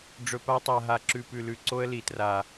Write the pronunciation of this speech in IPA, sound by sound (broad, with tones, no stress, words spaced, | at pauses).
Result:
ɖ͡ʐɵ˨pa˦tˤa˨ɦa˨ ǁʉ˨pʉ˨lʉ˨ ǀo˦ə̯li˨tra˨